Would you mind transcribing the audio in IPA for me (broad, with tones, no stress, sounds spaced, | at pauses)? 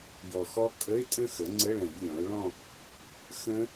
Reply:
j ɔ˨˩ x ɔ˦˥ kʼ ə˧˥˧ ɪ̯ tʼ ə̃˥˧ x ə˩˥ ŋ͡ǀ ə˧˥˧ ɭ ə̃˨˩˦ j lʲ ɔ̃˩˥ ʊ̯ ɭ ɔ̃˥˧ | x ə̃˦˥